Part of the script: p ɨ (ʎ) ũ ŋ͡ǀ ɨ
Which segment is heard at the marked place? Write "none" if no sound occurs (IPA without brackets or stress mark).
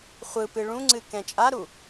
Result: ɭ